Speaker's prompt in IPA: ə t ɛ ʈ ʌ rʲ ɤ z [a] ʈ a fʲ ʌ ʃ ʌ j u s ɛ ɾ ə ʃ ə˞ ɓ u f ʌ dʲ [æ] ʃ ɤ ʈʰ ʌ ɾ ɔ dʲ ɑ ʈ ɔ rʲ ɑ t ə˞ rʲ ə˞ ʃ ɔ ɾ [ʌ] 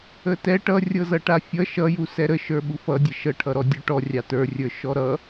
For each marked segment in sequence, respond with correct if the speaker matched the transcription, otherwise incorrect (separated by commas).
incorrect, incorrect, correct